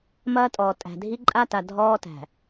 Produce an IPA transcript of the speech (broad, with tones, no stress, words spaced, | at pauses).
mɐː˦tʼɔː˨tʼæ̤˨ dʱi˦ ǃʼa˦ta˨ dʱɔː˦tæ̤˨